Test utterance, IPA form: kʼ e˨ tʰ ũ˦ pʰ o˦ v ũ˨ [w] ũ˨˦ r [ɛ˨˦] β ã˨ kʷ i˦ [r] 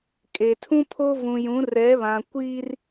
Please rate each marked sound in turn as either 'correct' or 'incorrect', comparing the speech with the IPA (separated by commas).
incorrect, correct, correct